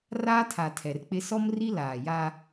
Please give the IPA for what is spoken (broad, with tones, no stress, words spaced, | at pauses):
raː˦tʰa˨ tʰɛ˨rk͡pɪ˦ sɔ˦mri˦laː˨ja˦